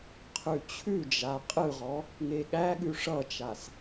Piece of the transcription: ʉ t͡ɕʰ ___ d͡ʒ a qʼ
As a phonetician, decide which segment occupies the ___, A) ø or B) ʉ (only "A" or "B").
B